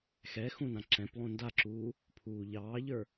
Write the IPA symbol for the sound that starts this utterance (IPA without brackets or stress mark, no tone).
x